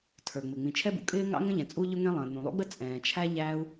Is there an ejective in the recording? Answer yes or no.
yes